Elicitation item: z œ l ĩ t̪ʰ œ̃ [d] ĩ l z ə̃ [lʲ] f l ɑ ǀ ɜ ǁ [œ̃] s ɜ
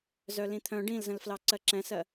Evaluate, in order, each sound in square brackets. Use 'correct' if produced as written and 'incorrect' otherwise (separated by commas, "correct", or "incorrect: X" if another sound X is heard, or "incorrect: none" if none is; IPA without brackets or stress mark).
incorrect: ɖ, incorrect: l, incorrect: ɛ̃